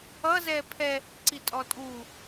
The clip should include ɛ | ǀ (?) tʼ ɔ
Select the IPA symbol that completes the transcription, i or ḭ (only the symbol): i